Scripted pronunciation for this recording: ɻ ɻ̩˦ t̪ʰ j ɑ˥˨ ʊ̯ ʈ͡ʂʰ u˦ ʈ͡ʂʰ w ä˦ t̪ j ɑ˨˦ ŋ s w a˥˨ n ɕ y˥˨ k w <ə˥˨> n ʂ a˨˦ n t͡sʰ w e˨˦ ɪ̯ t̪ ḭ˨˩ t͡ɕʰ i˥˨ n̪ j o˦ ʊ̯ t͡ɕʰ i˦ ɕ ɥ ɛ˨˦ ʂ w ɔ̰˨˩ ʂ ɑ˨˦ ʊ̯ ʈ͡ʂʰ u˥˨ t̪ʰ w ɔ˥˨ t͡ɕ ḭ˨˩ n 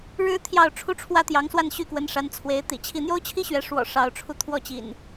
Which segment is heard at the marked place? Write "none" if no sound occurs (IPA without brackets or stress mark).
ə˨˦